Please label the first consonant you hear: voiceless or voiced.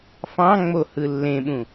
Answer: voiceless